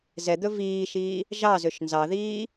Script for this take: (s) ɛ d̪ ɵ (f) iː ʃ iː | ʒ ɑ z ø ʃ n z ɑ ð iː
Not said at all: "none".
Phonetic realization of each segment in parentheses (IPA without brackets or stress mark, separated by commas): z, v